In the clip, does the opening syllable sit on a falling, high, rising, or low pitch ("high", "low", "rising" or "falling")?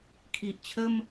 low